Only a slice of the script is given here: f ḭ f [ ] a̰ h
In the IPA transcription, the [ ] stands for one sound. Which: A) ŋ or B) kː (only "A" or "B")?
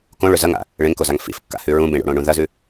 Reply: B